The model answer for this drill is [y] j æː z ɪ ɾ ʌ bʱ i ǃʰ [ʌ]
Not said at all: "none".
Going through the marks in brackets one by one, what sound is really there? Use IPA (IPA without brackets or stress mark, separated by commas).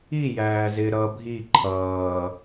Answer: i, ʌː